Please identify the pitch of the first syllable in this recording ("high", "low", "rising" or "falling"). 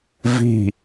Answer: falling